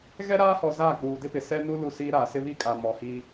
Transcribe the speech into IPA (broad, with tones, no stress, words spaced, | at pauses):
ɣɛ˦ɾaː˦hɔ˨ zaː˦˨k͡puː˨dɪ˦pɪ˨ sɛ˦nu˦ lu˦˨siː˦ɾaː˨ sɪ˦βi˦kʼa˨ mɔ˨hiː˦